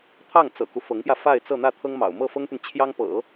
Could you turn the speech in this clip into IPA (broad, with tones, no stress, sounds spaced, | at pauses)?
t̪ʰ ɑ˥˩ ŋ t͡s ɤ̰˨˩ k u˦ f ɤ˧˥ ŋ p j ä˧ f a˥˧ ɪ̯ t͡s ɤ˥˧ n̪ ä˥˩ t̪ʰ ɤ˥ ŋ m ɑ̰˨˩ ʊ̯ m ɤ˥˩ f ɤ˥ ŋ t̪ y˨ n t͡ɕʰ j ɑ˥ ŋ p ɤ̰˨˩˦